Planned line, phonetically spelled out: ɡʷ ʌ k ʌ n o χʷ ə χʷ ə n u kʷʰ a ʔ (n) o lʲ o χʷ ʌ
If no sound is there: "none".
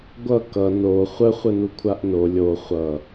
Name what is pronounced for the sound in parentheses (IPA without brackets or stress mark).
n